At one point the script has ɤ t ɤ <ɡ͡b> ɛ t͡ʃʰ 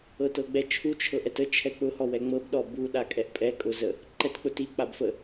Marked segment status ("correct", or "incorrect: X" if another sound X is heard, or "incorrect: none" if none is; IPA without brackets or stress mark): correct